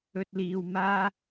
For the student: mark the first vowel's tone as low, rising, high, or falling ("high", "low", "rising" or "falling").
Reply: high